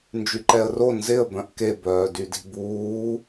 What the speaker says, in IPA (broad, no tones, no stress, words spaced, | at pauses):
nd͡ʒyǃɛə̯ro nzɪə̯ bœ̃ʔke bœːdydi̤buː